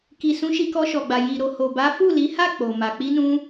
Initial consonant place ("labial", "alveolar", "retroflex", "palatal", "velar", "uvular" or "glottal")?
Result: velar